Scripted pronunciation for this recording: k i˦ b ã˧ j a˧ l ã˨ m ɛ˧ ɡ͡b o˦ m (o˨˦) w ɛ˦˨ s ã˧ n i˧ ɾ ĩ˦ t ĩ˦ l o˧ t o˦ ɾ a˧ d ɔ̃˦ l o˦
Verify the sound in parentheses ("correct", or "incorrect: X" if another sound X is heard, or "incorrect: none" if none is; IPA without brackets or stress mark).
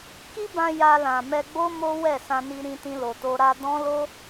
incorrect: o˦